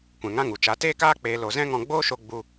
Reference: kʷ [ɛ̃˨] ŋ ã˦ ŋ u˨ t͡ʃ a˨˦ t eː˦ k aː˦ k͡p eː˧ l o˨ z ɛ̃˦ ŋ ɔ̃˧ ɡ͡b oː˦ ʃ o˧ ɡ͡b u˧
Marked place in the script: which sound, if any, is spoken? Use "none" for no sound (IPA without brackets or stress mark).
ɛ̃˨